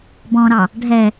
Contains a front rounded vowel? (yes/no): no